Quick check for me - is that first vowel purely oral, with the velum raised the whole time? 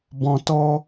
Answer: no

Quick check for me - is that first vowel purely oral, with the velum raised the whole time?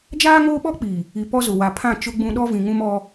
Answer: yes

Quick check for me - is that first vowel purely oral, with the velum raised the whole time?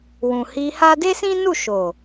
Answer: no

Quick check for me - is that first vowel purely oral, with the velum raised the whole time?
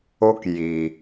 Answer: yes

